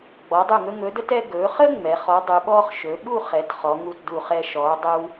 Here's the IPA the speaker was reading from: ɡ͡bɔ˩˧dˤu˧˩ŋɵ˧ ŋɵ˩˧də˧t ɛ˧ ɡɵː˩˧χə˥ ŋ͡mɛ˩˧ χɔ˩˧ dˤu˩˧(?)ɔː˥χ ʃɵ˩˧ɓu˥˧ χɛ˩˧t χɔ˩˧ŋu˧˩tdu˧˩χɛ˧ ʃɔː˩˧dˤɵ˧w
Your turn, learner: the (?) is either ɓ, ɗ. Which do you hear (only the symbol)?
ɓ